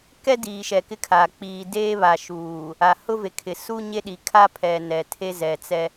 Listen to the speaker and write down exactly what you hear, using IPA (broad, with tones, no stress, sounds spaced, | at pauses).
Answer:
k ɛ˦ d iː˨ ʃ ɛ˨ k ɪ˦ kʰ aː˨ k͡p iː˨ d eː˦ β a˨ ʃ uː˨ | a˨ h ʊ˦ v e˨ kʰ ɪ˨ s u˦ ɲ e˦ ɗ i˨ kʰ a˦ pʰ ɛ˨ n ɛ˨ tʰ e˦ z ɛ˨ t͡s ɛ˦